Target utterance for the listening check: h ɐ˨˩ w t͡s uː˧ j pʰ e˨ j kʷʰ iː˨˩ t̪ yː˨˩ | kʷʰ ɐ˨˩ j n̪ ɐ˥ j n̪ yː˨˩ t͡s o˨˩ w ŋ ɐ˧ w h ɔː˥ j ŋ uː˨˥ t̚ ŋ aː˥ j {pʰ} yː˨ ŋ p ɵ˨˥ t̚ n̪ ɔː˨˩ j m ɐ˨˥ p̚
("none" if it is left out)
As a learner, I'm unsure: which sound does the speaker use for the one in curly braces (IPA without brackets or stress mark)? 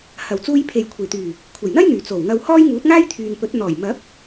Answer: t̪ʰ